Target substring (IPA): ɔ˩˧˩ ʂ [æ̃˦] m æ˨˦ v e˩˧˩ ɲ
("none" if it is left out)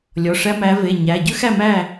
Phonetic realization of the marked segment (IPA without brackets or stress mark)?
æ˦